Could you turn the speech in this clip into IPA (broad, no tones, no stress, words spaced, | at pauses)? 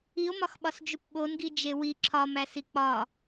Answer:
io̯mɒxɓɒs d͡ʒupɓonɡi d͡ʒewi ǁʰɒmæsi k͡pɒ